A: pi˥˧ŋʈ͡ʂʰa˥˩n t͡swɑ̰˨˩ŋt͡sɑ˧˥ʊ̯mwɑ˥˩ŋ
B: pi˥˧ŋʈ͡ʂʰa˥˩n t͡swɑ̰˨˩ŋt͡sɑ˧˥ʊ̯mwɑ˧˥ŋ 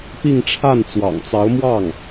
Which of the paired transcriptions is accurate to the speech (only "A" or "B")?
A